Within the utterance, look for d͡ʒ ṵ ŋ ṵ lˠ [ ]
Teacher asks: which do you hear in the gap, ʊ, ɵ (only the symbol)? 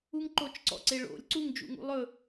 ɵ